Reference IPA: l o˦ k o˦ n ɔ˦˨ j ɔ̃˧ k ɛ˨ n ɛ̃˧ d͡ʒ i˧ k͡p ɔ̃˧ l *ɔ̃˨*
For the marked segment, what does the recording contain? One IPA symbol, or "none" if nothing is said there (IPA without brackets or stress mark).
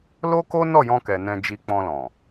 ɔ̃˨